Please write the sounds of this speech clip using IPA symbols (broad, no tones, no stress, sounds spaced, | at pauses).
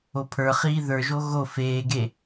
o pʰ ə˞ χ iː ð ə˞ ʒ o ɣ o f eː ɡ e